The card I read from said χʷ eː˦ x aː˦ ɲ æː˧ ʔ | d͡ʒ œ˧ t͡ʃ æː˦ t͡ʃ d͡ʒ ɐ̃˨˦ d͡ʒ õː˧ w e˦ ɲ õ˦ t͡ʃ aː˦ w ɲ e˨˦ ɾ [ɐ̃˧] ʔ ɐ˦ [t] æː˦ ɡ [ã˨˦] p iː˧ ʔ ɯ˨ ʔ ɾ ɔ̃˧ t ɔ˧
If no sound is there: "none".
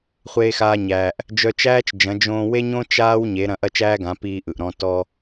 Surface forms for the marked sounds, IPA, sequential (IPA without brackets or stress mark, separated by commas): ɐ̃˧, t͡ʃ, ã˨˦